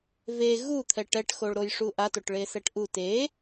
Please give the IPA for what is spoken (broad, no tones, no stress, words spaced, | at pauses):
ve ɣut̪ʰɛʈ ɛʈxoɭ ɾojʂuʔatoʈ ɭesɛʈʔu te